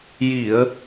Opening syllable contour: low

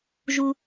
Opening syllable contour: high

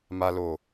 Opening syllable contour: low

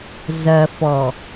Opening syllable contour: low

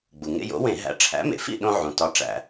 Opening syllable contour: low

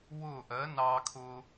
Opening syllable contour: falling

